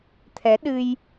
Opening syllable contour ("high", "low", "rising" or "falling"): rising